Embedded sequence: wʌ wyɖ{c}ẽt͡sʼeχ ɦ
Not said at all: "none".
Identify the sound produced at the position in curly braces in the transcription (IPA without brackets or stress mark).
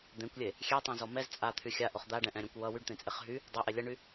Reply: t̪